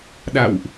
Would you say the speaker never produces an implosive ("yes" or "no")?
no